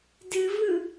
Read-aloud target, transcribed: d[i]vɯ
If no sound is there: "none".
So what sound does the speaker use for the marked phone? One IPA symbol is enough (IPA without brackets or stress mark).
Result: ɨ